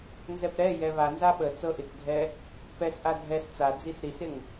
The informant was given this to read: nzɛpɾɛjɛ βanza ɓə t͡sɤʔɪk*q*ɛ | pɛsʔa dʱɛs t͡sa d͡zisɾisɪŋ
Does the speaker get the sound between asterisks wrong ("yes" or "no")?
yes